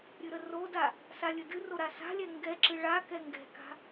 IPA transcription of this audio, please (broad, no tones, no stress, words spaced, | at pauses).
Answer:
ɾʲɨɾəroda | salʲədɨro ɾasa̤lʲɛ ŋɡɛǁɨ ɭa kɛŋɡɛ̤ka̤